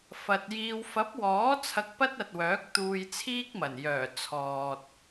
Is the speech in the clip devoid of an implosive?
yes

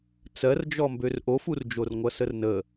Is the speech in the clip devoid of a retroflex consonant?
yes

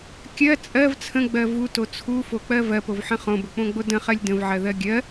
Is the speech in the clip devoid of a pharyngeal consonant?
no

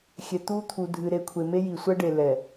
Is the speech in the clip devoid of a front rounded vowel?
yes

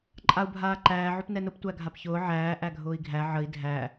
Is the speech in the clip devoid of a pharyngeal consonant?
no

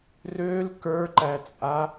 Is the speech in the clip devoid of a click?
no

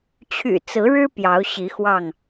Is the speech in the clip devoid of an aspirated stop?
no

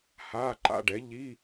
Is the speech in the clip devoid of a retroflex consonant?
no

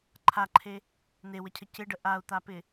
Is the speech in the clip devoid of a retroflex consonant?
no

